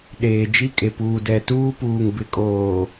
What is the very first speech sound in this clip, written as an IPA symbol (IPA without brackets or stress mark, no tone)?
ɗ